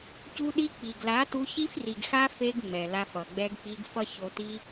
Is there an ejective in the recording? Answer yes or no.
no